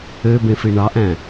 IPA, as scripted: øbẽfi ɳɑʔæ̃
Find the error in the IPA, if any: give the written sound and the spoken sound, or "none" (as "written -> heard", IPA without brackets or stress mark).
none